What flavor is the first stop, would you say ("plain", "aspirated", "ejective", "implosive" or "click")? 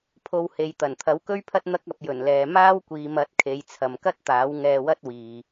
aspirated